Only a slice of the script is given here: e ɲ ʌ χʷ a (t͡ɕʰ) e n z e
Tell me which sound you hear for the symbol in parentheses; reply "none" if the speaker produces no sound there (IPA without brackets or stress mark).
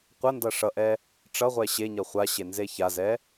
ɕ